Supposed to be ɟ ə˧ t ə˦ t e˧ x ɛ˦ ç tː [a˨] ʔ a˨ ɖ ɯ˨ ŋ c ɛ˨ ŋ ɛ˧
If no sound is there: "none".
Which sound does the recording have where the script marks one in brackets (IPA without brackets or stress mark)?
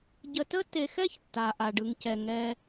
a˨